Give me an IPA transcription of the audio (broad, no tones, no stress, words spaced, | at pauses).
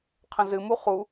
qʰə̃zɨmu χu